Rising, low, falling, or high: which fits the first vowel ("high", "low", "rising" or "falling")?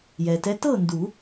low